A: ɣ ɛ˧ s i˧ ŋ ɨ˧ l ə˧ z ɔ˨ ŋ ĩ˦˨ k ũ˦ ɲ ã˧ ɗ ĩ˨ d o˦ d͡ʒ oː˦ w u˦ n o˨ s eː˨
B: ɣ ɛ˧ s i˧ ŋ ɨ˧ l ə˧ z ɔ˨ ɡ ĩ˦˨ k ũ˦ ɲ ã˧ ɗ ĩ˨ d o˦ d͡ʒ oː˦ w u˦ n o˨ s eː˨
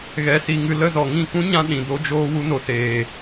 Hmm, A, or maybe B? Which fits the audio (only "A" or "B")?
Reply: A